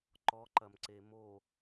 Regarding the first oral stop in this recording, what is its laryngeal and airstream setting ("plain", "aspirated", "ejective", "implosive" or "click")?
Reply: click